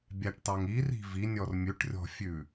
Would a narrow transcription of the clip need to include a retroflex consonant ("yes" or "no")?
yes